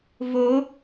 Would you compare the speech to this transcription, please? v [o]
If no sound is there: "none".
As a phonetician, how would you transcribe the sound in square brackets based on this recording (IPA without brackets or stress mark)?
o